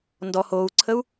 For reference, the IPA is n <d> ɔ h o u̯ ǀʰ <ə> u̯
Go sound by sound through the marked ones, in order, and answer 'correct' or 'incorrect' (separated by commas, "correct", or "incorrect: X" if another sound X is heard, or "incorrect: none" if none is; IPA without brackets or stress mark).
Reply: correct, correct